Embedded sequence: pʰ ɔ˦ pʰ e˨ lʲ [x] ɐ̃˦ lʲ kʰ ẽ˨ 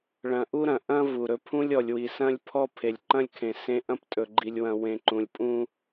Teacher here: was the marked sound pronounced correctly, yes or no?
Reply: no